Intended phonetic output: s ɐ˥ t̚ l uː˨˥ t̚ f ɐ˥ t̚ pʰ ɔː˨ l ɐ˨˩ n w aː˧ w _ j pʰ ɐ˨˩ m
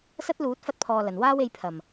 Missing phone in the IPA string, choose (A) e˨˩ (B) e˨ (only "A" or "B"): B